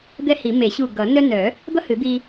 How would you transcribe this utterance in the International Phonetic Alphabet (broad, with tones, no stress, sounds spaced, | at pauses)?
d̪ ɛ˦ h i˨˩˦ m e˨˩˦ ɕ u˧˩ ɡ ʌ˨˩˦ n œ˦ n œ˨˩˦ | d̪ ʌ˦ h ɨ˨˩˦ d̪ i˦